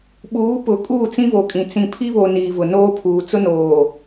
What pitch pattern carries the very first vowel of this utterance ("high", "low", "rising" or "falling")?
rising